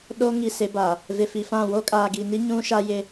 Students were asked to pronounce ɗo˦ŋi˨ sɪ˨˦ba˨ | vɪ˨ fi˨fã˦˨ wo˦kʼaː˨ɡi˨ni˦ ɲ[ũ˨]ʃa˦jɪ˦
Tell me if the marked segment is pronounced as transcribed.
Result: no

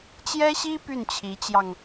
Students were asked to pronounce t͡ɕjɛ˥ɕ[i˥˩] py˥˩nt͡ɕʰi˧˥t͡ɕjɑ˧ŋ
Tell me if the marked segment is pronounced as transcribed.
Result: no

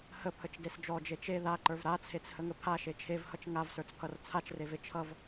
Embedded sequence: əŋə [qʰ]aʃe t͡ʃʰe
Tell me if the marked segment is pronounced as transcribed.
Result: no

